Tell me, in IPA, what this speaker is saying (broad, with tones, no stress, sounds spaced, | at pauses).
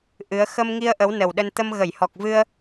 ʔ ɨ˨˦ ə̯ x ə˧ m ŋ i˧ ə̯ ʔ ə˨˦ w n ə˨˩ w ɗ ə˧ n t̪ ə˧ m ɣ ə˧˩ j h ɔ˨˩ k̚ v ɨ˧ ə̯